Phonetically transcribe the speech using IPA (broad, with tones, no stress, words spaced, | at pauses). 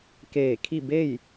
keː˧˩ kʰi˥˨ be˥˨j